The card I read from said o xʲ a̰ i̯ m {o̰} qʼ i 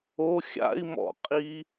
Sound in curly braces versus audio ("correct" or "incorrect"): incorrect